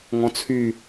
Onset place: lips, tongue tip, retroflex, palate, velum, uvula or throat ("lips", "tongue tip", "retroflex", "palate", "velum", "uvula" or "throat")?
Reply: velum